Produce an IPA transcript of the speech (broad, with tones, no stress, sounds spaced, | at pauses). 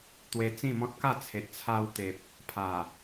t̪ w e˧ t͡s ĩ˥˧ m ɔ̃˦ t̚ k a˥˧ t͡sʰ e˨ t̚ t͡sʰ a˧ w t̪ e˨ p̚ | pʰ a˨˩